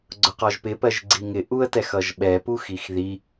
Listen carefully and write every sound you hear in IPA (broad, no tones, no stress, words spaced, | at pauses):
ɡ͡ǀʊqɒʒpɪ pɜʒɡ͡ǀiŋɪ ʔuə̯tɛxʌʒɓɛ puxixði